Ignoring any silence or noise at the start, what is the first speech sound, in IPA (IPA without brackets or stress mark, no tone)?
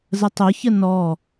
z